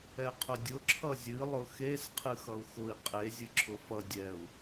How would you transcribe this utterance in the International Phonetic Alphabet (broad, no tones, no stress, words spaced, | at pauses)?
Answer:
ɛqʰʊdʲʊ ǁʰʌzʲɨ lˠʊxes qʰɨxʌu̯xʊi̯ qʼe zʲɨǁʰʊfʌ dʲɛu̯